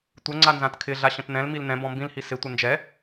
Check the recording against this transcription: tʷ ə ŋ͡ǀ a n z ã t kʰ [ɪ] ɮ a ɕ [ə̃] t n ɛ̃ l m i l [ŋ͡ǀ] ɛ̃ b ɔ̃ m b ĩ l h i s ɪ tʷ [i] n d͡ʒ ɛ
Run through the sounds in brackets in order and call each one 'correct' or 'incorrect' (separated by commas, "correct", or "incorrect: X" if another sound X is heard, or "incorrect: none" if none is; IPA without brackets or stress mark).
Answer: correct, correct, incorrect: n, incorrect: ɪ